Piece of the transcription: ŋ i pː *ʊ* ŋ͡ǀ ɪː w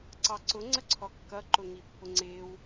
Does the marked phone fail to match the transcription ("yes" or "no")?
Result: no